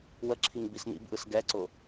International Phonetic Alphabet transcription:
wəǁʰiŋ bisnḭbʔɯs ɡɛǀʊ

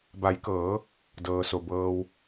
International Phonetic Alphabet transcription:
ba˩˧jkɤː˩˧ | dɤː˩so˩ bɤː˩w

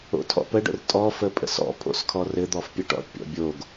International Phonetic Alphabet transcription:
o̰tʰɔ̰pəɖə̰r tʼɔfə pʼə̰sɔ̰pʰo̰skʰɔ rɘd̪ɔfpʲə ʈɔ̰ʈpʲɔ̰ bʲoɡ

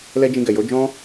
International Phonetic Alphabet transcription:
lɛ˦d͡ʒĩ˧ɡɛ˨ jo˨˦d͡ʒɔ̃˦

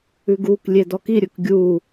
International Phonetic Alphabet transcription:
ʉɡuk lʲedɔki ɾʲɵkɡʲu

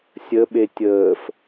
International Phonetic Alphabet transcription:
sʲəɓe tʲəːf

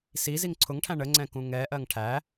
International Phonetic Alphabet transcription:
si ziŋǀʰʊŋʈʰæ̃ ɳəŋ͡ǀɛ̃ kũŋɛʔɜŋ ʈʰæ

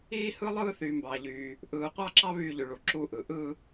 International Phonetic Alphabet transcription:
iː˥˧hɯ˥˧lˠɯː˥˧ θyː˨mbɑː˨ʎyː˨ | ʔɯː˨qʷɑ˥˧ǁɑ˥˧ βyː˥˧ʎy˨ ɭu˨ ǁu˥˧ʔɯ˨ ʔɯ˥˧

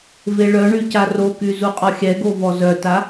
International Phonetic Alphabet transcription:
veɭœɳy caroky zuqʼɔxʲɛɡo vɔzœta

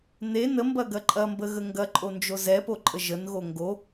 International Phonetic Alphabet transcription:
ne nəmbɐ ɡɐǃʼɐmbə ɣəŋɡɐǃʼond͡ʒo zɛpoǃʼə ʒənɣo ŋɡo

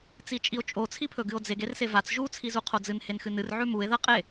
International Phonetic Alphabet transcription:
t͡sit͡ʃʼio̯t͡ʃʼo t͡sʰipʰɵɡɨo̯d͡zeɡ ersevat͡s ʒu t͡sʰizuqʰod͡zɨn henxɨnɨr ʕʉmue̯ ðɐ qʼe

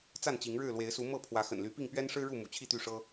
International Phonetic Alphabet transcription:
t͡sa˥˨nt͡ɕi˨˦ŋɻɻ̩˥˨ lwe˨˦ɪ̯su˨˦ mɤ˥˨ pʰwä˨˦xə̰˨˩nly˨˦pi˥˨ŋ pɥɛ˦nʂɻ̩˦ɻu˥˨ mṵ˨˩t͡ɕʰi˥˨t̪y˥˨ʂɤ˦

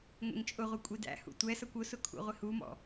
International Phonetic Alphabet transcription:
ŋʷɛ̰ŋt͡ʃʼʊʁʷʌ kʷʼidæ̰hṵ tʷɛsʌkʷ ʊsʊ kʰṵʁʷɪhumɔ̰

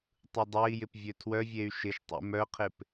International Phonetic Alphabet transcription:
tˤɯdˤɛi̯jɪp vʲøtʰwœvʲey̯ ʃɪʃtˤṵ mœqʰɪp

